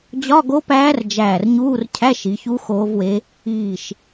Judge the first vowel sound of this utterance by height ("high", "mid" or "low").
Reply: low